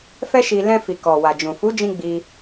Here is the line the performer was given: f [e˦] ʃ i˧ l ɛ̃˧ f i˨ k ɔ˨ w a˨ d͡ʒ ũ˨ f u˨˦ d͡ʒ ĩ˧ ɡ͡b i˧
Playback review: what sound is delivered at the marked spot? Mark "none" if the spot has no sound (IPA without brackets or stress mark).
ɛ˦